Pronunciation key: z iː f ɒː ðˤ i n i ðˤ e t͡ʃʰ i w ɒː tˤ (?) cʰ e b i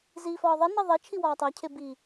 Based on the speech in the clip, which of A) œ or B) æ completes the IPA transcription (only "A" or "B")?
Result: B